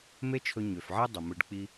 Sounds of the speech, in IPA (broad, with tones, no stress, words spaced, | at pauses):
me˥t͡ʃʰɵ˧ɲø˩fʕe˥ dˤə˩mɯ˧ɖk͡pi˥